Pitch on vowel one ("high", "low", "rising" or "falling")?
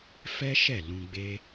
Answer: high